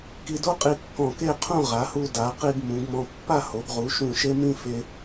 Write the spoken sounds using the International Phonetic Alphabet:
k i˧ d o˥ qʼ i˧ kː ɔ̃˧˩ k e˥˧ qʰ ũ˥˧ ʁ a˩˧ h u˧ d a˩˧ q i˧ ɡ m ũ˩˧ ɡ m ɔ̃˧ pː a˥˧ h o˩˧ ɡ ʁ u˩˧ ʃ ũ˧˩ ʃ e˥ m ĩ˥ f e˧

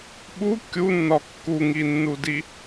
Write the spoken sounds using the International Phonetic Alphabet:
ɓ u kʲ u nː ɒ kː u ŋ i nː u d i

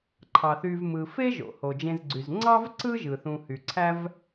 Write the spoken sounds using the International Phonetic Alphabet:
ǃʰ ɑ˩ θ y˨ v m ɯ˩ f e˥ ʒ o̰˩ h o˩ d͡ʒ ẽ˨ z ɡ͡ǀ y˩ z ŋ͡ǀ ɑ˥ v ǀ ɯ˥ ʒ ɯ˩ θ ũ˨ h y˩ ǀʰ æ˥ v

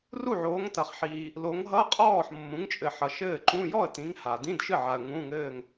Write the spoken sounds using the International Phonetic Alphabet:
r u˥˩ ʕ oː˨˦ ŋ t ɐ˨ χ ħ iː˨ | l o˨˦ ŋ ɦ ʌ˧˥˧ qʼ ɔː˥˩ ħ mː ũ˨˦ ŋ t͡ʃʼ ɘ˨ ħ ʌ˨ ʃ ɘː˥˩ ǃ ũ˧˥˧ j ɔ˥˩ ə̯ t ĩ˨˦ ŋ h a˨ d ĩ˧˥˧ d ʃ ɨ˥˩ ʕ a˨ ə̯ ŋ ũ˧˥˧ ŋ ɘː˥˧ ŋ

